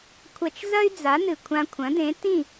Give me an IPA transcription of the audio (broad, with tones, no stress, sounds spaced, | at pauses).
kʷʰ ɐ˧ t͡ʃ z ɐ˥ y̯ d͡z a˩˥ n ɨ˩ kʷʰ ã˧ kʷʰ ɐ̃˩˥ d ẽ˩˥ t ĩ˥˩